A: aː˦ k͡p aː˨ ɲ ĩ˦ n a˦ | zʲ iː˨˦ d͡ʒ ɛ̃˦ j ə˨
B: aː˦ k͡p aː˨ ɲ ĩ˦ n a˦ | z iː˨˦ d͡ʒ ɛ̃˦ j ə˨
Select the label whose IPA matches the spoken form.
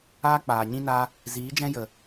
B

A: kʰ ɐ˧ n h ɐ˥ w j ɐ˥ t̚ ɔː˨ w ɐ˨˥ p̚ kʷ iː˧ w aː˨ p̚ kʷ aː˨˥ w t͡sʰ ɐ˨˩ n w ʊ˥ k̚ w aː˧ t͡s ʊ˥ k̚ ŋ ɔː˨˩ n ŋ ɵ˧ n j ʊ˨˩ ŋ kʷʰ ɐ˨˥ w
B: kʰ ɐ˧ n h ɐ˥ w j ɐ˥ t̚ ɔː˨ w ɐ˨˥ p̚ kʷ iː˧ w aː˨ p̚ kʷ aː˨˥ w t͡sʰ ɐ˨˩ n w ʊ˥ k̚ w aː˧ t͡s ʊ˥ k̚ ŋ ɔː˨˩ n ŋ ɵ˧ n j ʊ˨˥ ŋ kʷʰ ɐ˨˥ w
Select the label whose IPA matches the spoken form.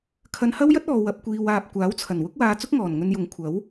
B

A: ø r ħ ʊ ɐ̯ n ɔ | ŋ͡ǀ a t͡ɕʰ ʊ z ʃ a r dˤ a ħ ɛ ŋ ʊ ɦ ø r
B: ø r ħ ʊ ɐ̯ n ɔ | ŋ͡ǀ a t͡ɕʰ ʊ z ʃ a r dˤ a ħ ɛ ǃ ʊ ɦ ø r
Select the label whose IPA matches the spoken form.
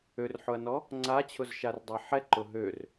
B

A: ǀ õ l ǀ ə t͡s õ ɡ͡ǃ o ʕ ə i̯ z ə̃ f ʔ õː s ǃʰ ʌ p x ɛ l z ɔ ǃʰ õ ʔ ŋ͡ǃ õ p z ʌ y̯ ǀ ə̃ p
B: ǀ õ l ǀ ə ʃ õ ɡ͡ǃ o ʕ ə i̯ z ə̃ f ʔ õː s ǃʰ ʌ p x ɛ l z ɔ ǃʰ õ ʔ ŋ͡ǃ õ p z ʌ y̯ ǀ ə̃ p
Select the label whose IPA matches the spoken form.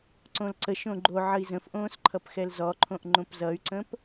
B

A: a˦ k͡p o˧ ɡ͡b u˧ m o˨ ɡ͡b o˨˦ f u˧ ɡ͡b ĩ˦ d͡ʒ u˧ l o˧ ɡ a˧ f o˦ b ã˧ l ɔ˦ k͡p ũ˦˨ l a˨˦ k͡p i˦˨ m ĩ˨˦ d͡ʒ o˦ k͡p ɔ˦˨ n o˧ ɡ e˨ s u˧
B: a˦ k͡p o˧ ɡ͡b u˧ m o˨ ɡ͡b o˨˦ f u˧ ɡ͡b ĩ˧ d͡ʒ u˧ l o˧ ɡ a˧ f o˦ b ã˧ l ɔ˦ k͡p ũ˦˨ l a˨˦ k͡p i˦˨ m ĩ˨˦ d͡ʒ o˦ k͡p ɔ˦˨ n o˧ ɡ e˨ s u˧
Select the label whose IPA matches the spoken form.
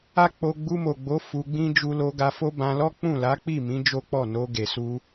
A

